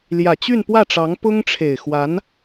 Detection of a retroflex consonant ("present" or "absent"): present